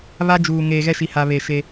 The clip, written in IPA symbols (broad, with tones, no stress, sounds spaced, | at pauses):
β a˦ d͡ʒ uː˨ ŋ eː˨ ɣ ɛ˦ ʃ i˨ h a˨ β e˨ ʃ e˦